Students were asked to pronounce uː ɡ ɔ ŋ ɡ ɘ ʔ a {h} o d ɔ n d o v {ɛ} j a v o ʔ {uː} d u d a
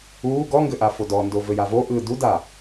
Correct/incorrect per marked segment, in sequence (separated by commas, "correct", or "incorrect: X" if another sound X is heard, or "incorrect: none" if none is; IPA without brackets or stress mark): incorrect: f, incorrect: ɘ, incorrect: ɯː